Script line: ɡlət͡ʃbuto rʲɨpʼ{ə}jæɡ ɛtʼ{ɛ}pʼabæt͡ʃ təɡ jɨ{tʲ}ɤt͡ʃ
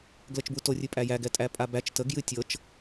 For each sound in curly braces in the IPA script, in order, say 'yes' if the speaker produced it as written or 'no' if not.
no, no, yes

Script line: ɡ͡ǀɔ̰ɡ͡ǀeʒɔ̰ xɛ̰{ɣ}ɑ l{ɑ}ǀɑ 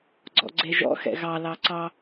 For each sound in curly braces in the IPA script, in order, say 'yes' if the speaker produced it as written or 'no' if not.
yes, yes

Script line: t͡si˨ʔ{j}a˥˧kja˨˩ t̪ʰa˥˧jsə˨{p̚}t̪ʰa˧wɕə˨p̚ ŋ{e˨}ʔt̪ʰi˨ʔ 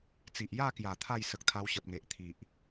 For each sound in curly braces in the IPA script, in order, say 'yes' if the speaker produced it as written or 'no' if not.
yes, no, yes

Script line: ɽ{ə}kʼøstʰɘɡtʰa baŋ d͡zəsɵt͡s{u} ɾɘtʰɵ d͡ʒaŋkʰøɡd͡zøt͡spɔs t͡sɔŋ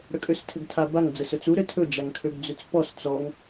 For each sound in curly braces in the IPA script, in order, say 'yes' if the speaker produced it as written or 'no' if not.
yes, yes

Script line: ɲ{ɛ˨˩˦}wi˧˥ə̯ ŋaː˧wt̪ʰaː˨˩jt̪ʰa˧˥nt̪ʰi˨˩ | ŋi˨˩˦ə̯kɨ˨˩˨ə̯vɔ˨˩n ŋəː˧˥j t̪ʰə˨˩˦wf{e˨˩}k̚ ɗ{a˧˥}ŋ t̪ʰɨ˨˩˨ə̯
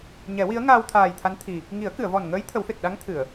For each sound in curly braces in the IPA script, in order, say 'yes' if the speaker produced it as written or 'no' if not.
yes, yes, yes

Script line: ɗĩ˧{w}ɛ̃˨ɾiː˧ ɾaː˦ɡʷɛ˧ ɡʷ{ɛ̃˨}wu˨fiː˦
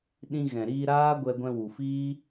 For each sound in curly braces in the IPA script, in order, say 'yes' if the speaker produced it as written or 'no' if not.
no, no

